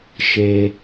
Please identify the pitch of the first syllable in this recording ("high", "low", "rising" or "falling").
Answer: low